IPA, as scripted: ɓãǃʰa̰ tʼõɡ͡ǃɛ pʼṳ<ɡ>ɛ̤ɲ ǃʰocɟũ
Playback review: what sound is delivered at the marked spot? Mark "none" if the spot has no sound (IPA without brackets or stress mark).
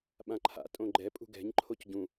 ɡ